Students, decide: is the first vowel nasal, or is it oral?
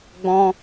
nasal